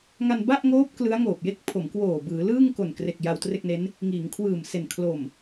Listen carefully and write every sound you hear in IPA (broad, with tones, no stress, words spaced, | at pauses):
ŋa˧nba˥˩ʔŋoː˦˥p̚ klɯ˦˥a̯ ŋoː˨˩p̚je˥˩k̚pʰo˩˦mkwoː˨˩ bɯː˩˦ lɯː˥˩ŋko˨˩nkre˨˩k̚ ja˧wtre˥˩k̚ne˦˥n | ŋiː˩˦ŋkʰwɯː˨˩mse˨˩n kʰlo˨˩m